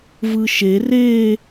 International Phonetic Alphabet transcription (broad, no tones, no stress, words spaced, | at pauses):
vɯʃe re